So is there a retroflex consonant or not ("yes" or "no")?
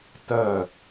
no